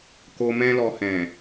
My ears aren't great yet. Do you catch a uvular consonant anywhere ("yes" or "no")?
no